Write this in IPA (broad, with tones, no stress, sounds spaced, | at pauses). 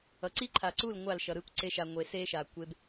ʌ˨ ǀ i˦ ǃʰ a˨ ǀ u˦˨ l ŋʷ a˦˨ l ʃ ʌ˨ ɾ ɯ˦ kʷ ǀ e˧ ʃ a˨ ŋʷ e˨ s e˦ ʃ a˨ kʷ e˧ b